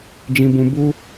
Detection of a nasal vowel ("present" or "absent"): present